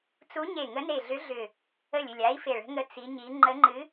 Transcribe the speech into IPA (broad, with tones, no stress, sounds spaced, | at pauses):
t͡s u˧˥ ɲ e˧˩ ŋ ə˧˥ n e˧˩ ɮ ʏ˧˥ ɮ ʏ˧˩ | ə˧˩ lʲ ʏ˧˩ lʲ a˧˥ i̯ f e˧˩ ɭ ə̤˧˥ ŋ ə˧˥ t͡s i˧˥ ɲ i˧˥ ŋ͡ǃ ə˧˥ ŋ͡ǃ ɨ˧˥